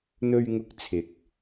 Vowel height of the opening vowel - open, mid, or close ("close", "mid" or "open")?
mid